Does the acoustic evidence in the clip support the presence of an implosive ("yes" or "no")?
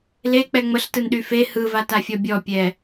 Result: yes